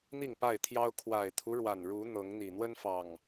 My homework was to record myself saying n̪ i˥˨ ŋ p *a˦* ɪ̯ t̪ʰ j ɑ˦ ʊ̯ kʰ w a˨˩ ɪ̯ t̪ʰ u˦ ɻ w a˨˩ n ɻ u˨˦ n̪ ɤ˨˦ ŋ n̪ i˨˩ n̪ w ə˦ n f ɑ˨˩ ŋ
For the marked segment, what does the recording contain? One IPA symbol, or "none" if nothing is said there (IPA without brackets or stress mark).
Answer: a˥˨